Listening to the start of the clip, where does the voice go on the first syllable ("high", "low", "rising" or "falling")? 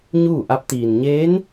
falling